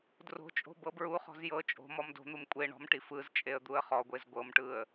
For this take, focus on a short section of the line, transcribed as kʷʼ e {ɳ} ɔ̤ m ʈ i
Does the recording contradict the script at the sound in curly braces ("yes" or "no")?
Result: no